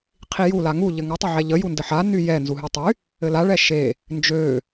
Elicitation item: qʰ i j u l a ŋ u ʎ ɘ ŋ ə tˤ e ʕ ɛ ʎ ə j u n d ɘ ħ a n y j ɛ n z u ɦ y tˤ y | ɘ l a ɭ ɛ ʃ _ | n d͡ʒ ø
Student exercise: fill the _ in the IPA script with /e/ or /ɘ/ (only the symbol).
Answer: e